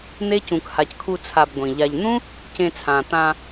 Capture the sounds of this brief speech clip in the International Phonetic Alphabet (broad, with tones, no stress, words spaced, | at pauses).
n̪e˦cũ˨kha˨ckʰu˧ t͡sʰa˧bɡʷĩ˨ʎa˧ʎ n̪ũ˦ | cẽ˧t͡sʰãː˨ t̪ã˧